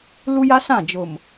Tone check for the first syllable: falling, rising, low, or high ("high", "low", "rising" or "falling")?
high